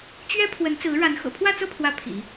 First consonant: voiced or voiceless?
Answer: voiceless